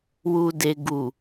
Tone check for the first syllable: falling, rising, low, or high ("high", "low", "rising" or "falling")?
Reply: low